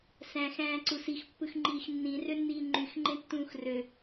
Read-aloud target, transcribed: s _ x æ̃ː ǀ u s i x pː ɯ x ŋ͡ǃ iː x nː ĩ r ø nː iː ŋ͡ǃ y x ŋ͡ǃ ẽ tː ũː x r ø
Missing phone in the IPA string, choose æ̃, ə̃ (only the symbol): æ̃